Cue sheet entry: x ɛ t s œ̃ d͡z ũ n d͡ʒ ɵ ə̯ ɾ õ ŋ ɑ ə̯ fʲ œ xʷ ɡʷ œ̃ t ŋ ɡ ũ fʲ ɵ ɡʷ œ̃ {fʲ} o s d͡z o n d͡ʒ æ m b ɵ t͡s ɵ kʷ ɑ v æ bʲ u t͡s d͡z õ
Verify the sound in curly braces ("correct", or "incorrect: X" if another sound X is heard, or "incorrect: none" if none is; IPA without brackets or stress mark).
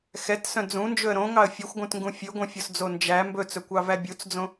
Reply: correct